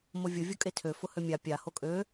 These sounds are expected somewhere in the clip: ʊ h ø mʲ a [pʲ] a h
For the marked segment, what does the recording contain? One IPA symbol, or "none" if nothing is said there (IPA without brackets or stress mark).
pʲ